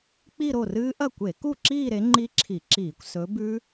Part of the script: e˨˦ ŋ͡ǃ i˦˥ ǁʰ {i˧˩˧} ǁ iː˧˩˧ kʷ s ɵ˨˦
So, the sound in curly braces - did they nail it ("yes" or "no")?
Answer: yes